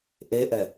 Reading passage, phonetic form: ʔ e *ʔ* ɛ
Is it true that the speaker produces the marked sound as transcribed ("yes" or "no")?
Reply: yes